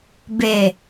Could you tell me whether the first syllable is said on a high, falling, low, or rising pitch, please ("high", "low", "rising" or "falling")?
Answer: low